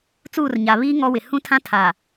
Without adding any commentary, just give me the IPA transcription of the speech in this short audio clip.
t͡suː˦˨rɲa˨ βiː˦ ŋɔ˦wɪ˨ hũ˦tʰã˦tʰa˨

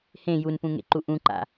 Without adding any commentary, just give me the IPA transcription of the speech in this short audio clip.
hẽ junpũŋḛǃu ʔũǃa̰

